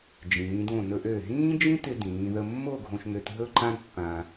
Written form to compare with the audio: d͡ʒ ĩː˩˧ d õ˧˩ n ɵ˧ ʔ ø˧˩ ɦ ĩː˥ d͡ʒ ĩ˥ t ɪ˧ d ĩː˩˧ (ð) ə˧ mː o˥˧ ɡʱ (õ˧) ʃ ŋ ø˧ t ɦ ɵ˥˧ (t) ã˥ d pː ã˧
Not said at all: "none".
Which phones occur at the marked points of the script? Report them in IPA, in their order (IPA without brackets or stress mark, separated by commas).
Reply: ð, õ˧, ǃ